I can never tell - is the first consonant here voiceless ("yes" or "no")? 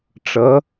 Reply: yes